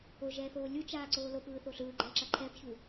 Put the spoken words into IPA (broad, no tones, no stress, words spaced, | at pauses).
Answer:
oʒɛːθoː lʲut͡ʃaːǀoː lopɯːθo ɬɯːɡ͡ǃɛːǁa ǃʰɛbçu